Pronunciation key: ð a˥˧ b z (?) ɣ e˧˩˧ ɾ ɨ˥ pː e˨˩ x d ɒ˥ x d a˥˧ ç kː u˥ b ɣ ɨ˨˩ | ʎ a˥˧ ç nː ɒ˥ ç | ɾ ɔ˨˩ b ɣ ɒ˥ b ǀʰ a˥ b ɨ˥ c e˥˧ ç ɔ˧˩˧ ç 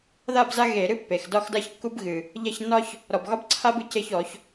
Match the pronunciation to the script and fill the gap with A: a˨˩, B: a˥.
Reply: B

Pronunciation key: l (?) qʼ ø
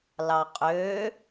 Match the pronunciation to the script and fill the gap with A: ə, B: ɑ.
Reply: B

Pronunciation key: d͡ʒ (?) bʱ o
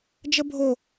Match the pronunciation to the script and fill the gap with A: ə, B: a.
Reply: A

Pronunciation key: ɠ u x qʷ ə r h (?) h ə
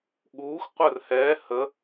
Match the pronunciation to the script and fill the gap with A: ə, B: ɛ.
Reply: B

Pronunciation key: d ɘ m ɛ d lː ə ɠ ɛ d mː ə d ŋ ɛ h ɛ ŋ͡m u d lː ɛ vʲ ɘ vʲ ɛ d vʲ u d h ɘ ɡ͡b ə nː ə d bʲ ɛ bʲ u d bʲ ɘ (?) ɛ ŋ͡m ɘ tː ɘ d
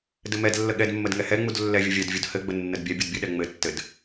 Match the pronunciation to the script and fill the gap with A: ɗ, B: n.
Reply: A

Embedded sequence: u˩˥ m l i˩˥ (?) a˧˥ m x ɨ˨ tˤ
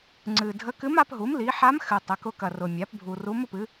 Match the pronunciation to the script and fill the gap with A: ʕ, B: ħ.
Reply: B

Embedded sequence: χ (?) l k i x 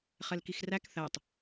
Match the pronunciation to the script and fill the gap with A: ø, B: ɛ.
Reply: B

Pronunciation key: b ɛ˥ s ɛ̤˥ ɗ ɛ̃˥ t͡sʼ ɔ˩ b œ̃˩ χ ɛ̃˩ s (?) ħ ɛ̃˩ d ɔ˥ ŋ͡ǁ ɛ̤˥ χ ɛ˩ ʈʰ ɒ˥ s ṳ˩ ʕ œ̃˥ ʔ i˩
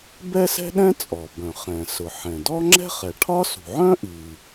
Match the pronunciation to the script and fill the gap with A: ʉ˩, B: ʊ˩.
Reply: B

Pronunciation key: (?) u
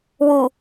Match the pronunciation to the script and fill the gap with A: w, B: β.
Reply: A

